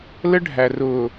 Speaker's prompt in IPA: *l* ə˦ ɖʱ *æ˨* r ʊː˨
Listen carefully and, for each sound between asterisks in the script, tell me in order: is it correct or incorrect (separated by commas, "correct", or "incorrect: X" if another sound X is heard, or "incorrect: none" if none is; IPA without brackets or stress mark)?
correct, correct